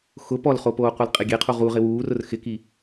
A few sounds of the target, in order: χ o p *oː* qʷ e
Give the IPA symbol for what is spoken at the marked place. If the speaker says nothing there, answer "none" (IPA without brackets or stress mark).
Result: oː